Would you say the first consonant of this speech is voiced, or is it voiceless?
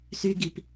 voiceless